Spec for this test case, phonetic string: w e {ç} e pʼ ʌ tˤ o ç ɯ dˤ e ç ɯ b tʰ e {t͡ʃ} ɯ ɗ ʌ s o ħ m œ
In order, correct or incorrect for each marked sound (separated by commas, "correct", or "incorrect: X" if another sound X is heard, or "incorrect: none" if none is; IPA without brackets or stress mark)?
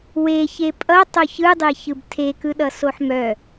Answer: correct, incorrect: k